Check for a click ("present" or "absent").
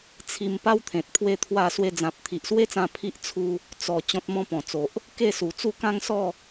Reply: absent